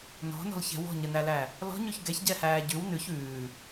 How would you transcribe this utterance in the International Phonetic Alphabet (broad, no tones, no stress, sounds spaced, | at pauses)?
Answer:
n ɔ̤ n ɔ̤ l ç ɛ̤ w ɔ̤ ɲ ə n æ l æ | l ɔ̤ ɲ ʉ ç ɡ ɛ ç ɟ ɛ h æː ɟ ʉ w n ʉ ç ʉː